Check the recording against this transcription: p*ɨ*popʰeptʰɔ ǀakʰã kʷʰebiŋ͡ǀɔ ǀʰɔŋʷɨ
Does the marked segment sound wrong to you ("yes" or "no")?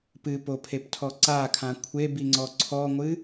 no